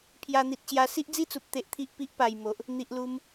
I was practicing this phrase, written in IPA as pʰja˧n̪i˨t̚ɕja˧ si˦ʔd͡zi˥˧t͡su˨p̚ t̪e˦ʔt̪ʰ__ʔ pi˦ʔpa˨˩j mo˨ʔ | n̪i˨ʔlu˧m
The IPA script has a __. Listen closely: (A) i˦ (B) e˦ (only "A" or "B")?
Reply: A